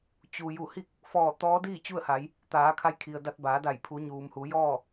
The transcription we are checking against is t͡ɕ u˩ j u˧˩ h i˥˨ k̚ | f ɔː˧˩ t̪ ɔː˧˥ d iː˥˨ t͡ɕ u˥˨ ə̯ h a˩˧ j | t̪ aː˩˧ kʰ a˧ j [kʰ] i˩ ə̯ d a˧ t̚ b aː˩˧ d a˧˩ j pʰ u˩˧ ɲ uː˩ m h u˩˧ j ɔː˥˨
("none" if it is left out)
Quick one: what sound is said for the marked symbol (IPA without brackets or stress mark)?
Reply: kʰ